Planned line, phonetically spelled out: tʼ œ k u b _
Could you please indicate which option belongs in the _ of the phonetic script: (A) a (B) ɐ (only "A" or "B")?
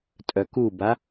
A